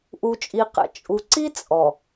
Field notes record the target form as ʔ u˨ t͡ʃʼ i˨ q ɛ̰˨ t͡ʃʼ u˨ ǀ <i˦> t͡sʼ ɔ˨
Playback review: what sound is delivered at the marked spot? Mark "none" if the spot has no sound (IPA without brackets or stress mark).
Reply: i˦